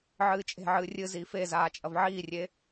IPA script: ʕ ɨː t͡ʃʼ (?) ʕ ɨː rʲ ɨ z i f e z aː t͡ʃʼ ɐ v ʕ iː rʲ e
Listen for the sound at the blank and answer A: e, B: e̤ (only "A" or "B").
B